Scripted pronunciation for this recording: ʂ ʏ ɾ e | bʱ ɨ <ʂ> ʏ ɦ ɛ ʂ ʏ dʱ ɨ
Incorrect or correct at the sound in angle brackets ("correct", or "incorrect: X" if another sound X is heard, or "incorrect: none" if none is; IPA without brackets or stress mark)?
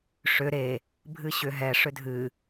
incorrect: ɕ